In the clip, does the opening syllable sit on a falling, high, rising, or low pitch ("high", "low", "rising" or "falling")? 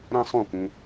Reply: high